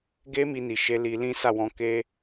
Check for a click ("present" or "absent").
absent